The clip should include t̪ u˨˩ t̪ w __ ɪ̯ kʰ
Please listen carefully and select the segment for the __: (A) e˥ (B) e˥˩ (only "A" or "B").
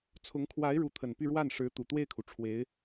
B